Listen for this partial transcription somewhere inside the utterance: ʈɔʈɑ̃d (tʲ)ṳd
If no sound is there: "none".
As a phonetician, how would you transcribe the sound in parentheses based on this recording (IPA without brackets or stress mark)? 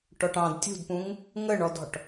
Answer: tʲ